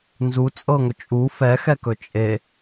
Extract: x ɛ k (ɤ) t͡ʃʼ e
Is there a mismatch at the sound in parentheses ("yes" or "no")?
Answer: yes